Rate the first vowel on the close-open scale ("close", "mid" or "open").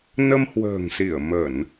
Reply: mid